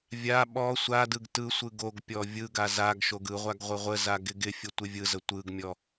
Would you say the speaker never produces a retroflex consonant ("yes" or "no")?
yes